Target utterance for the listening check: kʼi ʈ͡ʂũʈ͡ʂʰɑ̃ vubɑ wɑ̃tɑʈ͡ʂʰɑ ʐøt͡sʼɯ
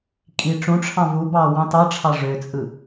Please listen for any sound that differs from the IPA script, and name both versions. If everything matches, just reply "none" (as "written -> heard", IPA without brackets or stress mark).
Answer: none